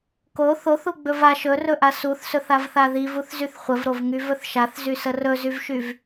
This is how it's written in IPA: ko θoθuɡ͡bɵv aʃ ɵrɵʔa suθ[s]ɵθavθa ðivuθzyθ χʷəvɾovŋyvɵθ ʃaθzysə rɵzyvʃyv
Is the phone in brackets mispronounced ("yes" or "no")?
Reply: no